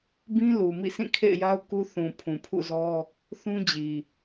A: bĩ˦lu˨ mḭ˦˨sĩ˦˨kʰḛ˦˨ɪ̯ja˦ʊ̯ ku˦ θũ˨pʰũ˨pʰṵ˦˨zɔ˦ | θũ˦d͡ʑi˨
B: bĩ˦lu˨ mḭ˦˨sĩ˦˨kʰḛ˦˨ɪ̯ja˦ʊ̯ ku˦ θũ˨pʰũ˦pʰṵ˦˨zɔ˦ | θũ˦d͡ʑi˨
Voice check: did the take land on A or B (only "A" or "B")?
A